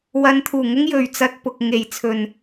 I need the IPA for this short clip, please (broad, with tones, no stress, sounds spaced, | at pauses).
w ɐ˨˧ n t̪ʰ uː˨˩ ŋ ʊ˥ ŋ j ɵ˨ ɥ t͡s ɐ˧ t̚ p ʊ˨ k̚ ŋ e˨ j t͡sʰ ɵ˨ n